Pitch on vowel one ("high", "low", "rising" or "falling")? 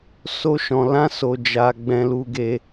high